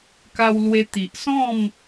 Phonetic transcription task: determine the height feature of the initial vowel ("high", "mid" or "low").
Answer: low